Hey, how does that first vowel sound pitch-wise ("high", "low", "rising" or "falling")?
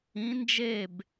rising